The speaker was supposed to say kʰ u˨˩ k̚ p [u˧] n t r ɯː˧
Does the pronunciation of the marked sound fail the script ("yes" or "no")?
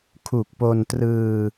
yes